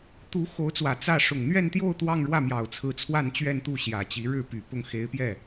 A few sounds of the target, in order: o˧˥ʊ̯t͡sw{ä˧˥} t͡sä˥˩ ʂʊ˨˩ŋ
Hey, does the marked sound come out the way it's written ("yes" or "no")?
no